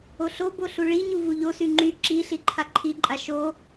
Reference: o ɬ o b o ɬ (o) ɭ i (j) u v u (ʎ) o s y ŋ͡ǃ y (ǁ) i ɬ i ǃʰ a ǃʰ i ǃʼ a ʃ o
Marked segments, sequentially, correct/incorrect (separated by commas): incorrect, incorrect, correct, correct